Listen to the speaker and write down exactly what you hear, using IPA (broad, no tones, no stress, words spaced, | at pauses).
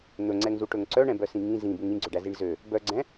n̪ɵŋ͡ǀɛŋzuʈɵŋ ǀœɳɛ̃bœsĩ ŋĩ zĩbuŋ ĩɡ͡ǀøɖæziɳ zø | bœɡ͡ǀɛ̃